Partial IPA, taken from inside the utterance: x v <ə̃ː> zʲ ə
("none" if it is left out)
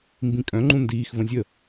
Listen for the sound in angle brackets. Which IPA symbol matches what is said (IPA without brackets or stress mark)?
ə̃